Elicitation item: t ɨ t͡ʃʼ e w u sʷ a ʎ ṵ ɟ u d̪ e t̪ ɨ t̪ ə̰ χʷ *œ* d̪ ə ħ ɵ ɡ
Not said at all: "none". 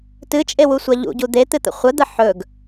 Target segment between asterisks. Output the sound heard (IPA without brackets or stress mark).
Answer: ə